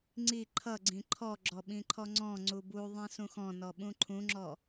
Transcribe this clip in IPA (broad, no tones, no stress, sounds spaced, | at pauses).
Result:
ŋ͡ǀ i ǃʰ ʌ ɡ͡ǀ ĩ ǃʰ ɔ ɡ͡ǁ ɔ ɓ ĩ ǃʰ ɔ ŋ͡ǀ ɔ̃ ŋ͡ǀ u b u ðˤ ĩ s ũ x ɔ̃ n ɔ ɓ ũ ǃʰ ũ ŋ͡ǁ ɔ